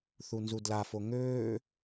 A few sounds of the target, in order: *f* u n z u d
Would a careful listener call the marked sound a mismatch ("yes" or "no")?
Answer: yes